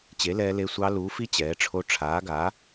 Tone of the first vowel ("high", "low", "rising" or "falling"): rising